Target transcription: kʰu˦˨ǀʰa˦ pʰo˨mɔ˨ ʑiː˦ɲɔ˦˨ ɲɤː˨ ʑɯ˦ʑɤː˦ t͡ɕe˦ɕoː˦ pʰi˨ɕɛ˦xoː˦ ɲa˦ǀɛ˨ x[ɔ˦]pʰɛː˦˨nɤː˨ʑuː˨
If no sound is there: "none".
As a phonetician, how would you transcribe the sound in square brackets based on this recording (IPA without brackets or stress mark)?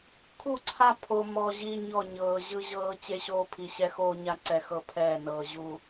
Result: ɤ˦